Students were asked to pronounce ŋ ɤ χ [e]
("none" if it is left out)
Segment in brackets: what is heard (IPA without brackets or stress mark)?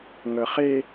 e